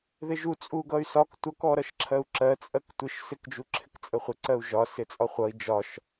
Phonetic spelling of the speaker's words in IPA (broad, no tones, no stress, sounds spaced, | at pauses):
ð ɪ ʒ u t͡sʼ u ɡ ʌ y̯ s ɒ k tʷ ʌ k ɔ ɾ ʌ ʃ ǁʰ ɜ u̯ ǁ ɜ t͡sʼ ɜ k tʷ ɪ ʃ s ɪ k d͡ʒ u ǁʰ ɪ k t͡sʼ ə χʷ ɪ ǀ ɜ u̯ ʒ ɒ s ɪ t͡sʼ ɒ χʷ ʌ i̯ d͡ʒ ɒ ʃ